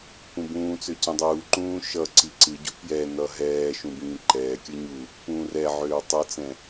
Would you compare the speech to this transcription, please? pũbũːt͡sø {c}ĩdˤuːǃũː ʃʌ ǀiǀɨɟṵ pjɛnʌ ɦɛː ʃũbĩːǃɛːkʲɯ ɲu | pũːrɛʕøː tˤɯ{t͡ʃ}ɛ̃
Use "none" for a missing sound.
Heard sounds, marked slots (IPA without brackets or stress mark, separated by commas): c, t͡s